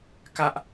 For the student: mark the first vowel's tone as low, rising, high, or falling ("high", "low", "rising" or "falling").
high